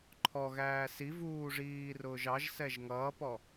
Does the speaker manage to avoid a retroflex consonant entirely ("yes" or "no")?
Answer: no